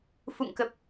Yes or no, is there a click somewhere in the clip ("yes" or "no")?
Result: no